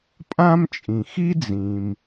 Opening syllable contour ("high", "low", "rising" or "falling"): high